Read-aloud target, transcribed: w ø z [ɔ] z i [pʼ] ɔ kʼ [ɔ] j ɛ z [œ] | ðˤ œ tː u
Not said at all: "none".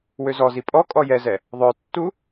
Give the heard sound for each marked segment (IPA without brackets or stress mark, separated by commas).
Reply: ɔ, pʼ, ɔ, ɛ